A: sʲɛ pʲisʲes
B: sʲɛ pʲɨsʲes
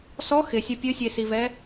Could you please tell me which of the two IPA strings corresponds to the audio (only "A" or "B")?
B